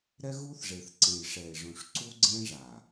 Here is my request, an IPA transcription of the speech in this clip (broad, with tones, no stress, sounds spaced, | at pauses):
ɾ ɛ˦ ɣ u˦ θ ʐ e˨ θ ǀ ẽ˨ j ʂ ɛ˨ e̯ ʐ ũ˨ ʂ ǀ u˦ ɡ͡ǀ ẽ˦ ʐ a˨